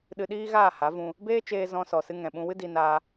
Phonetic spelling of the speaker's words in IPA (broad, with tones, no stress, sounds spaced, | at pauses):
ɗ ɨ˧ ɗ iː˦ ɣ aː˦˨ h a˨˦ v ũ˧ | b eː˦ t͡ʃ eː˧ z ɔ̃˧ s ɔ˨ s ɨ˧ ŋ ɛ̃˨ ɓ ũ˧ w ɨ˦ d i˧ n aː˧